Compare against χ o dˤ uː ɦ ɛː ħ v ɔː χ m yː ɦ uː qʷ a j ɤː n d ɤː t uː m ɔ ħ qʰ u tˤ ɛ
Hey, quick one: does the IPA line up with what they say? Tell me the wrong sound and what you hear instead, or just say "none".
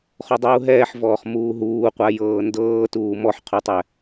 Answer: yː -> uː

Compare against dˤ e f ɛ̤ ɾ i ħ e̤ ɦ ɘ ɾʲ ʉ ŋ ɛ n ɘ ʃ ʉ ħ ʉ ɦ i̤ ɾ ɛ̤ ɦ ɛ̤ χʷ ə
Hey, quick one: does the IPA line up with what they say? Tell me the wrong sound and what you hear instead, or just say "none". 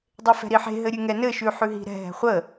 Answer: none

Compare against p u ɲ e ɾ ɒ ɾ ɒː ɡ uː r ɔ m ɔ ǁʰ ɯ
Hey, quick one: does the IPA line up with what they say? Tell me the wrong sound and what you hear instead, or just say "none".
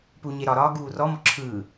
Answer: none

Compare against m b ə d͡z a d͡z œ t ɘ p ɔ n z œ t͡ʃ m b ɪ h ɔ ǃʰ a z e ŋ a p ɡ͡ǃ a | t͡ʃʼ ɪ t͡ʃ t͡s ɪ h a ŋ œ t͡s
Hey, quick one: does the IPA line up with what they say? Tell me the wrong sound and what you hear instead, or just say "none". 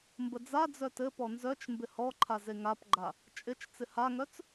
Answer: none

